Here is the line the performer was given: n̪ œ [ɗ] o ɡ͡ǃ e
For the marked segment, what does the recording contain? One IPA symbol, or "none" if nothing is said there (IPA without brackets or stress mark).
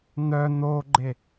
n̪